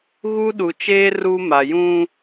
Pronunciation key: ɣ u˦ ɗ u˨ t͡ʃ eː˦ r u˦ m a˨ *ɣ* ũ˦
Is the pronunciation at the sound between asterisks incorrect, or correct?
incorrect